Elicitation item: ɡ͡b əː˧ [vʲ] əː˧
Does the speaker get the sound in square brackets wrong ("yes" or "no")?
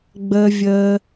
no